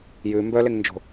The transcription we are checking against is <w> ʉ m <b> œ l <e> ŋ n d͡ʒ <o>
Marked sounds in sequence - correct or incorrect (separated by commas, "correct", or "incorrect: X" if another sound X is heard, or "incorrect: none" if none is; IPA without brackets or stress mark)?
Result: incorrect: j, correct, correct, incorrect: o̤